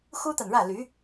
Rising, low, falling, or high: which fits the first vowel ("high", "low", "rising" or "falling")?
high